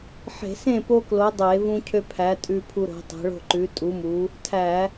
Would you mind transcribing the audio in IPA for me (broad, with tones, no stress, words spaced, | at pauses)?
ħe̤˧˩˧sẽ˥˨po˦ klo˨˥dˤe˧˩˧ vũ˦cʰø˦pʰæ˨˥ tʼʉ˦pʰu˦ɾo̤˨˥tˤe̤˨˥ ɭo̤˥˨ǃʉ˨˥tʼu˨˥mu˨˥ | tʰæ˧˩˧